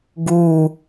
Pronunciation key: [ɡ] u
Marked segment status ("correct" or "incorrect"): correct